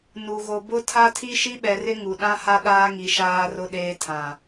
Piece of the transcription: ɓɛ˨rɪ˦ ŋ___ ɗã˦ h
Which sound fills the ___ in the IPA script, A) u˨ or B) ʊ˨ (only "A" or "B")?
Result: A